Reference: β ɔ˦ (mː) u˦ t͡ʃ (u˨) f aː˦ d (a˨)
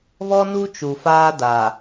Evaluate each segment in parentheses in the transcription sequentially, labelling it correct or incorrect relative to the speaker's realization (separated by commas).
incorrect, correct, correct